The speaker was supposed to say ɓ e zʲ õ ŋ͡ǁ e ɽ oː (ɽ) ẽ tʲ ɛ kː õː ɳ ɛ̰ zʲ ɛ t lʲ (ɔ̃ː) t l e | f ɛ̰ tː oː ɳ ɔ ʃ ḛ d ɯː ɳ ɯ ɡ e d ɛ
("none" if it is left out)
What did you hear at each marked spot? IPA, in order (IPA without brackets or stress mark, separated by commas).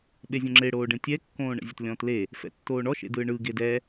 ɖ, ɔ̃ː